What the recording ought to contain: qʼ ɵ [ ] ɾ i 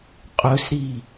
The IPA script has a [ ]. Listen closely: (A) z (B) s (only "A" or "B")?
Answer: B